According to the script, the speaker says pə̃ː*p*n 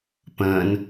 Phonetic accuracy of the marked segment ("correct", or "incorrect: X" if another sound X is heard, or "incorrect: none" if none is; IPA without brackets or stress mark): incorrect: none